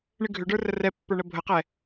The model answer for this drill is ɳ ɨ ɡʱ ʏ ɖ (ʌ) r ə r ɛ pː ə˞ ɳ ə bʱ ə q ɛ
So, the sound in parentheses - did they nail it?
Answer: no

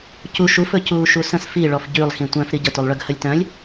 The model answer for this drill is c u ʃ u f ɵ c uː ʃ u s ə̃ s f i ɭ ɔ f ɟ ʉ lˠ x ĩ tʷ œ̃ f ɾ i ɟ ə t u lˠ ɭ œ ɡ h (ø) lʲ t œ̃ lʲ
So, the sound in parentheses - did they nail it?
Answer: no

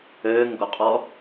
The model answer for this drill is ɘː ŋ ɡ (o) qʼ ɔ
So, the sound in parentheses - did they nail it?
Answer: yes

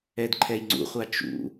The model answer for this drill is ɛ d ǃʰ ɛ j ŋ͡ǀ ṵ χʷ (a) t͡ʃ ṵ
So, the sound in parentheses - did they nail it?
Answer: yes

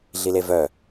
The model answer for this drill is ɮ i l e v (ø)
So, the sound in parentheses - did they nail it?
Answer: no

